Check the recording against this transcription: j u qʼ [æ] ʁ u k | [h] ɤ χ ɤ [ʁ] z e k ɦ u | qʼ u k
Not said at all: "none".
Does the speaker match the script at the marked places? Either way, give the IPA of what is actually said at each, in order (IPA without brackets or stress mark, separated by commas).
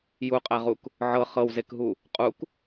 æ, ʕ, w